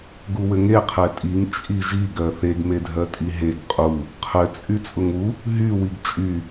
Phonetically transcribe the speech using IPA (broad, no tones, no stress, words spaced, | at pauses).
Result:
ɡuwɘŋe qʰɛtʼiŋ t͡ʃʼiʒi ɡɜθeɡ medʱɜtʼiɦeɡ qʼu | qʰɘ t͡sʼyt͡sʼʊŋu | ɦy wiɡt͡ʃʼy